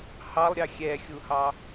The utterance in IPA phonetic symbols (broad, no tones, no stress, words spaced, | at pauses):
hɑlˠɾʲɑ xʲɛxʲuhɑ